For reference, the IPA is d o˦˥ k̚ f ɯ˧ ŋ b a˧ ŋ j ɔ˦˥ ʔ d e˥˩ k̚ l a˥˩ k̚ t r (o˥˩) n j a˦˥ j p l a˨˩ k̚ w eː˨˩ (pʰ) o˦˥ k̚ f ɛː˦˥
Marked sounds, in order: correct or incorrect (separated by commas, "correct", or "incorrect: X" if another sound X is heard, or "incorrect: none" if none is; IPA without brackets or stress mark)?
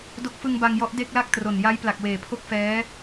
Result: incorrect: o˨˩, correct